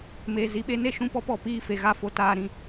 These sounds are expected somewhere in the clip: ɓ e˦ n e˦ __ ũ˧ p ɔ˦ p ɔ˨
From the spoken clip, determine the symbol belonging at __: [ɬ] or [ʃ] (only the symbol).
ʃ